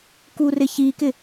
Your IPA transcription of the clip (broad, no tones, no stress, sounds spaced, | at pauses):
k u r ɪ ç i k ɪ